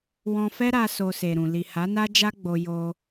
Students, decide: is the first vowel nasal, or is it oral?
nasal